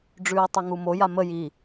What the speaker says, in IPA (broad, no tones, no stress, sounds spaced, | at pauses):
ɖ͡ʐ ʉː i̯ tˤ u ŋ u m o j a m ə j i